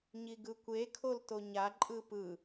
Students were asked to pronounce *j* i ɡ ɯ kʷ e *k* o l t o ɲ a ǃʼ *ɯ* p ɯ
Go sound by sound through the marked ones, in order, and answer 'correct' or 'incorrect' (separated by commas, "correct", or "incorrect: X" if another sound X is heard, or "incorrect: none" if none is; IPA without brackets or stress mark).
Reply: incorrect: ɲ, incorrect: kʰ, correct